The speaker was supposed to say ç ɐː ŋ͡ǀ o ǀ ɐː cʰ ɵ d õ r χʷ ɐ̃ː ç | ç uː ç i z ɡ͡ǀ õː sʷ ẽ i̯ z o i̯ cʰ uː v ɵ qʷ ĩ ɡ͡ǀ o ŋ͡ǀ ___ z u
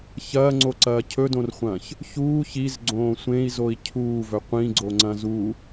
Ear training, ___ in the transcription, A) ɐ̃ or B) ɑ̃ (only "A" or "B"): A